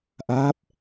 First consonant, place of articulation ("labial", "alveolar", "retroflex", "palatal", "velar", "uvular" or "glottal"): glottal